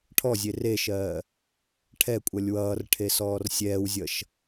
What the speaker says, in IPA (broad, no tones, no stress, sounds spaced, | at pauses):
ʈʰ ɔ zʲ e r e ʃ ɜː | ʈʰ ɛ kʷʼ ʌ lʲ w ʌː r ʈʰ e s ɔː r sʲ ɛː w zʲ ʌ ʃ